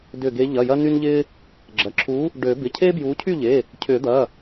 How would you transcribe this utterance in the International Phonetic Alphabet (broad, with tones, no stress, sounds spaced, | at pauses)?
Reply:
d ʏ˧˩ ɡ e˨˦ ʎ ɐ˩˧˩ j ɐ˦ n y˦ n ʎ ɪː˦ | ɡ͡ǁ ɐ˩˧˩ ǁʰ uː˨˦ | ɖ ø˨˩˦ b ɪ˩˧˩ cʰ eː˦ b j uː˨˦ cʰ y˥˨ ʎ e˩˧˩ | cʰ ʏː˨˩˦ d̪ ɐ˩˧˩